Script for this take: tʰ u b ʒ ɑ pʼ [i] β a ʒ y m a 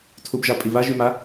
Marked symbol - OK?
yes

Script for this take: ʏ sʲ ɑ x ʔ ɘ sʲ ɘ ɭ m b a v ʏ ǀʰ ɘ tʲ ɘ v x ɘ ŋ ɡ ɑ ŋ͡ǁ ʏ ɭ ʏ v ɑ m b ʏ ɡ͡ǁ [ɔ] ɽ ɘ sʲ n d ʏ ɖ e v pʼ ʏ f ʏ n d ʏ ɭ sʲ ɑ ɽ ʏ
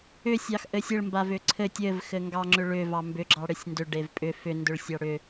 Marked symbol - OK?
no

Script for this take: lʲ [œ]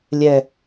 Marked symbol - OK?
no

